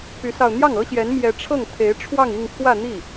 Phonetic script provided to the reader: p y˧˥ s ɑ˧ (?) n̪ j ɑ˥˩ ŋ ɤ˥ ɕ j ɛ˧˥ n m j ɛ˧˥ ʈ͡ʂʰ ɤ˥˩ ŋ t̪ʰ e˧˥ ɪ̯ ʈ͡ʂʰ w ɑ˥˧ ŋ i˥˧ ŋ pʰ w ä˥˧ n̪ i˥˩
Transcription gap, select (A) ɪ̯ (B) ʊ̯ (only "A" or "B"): B